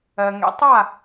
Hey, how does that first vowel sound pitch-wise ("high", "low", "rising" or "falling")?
low